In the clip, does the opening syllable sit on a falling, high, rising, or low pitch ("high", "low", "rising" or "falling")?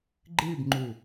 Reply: falling